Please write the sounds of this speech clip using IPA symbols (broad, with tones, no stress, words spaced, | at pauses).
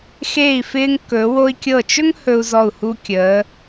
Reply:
xeː˧˩i̯fɪː˧ŋkɵ˩˧ wo˧i̯kʲɤ˧˩t͡ʃɵ˥ŋ hɵ˧u̯zɔ˧˩u̯hu˧ kʲəː˩˧